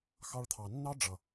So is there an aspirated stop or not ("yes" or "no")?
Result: yes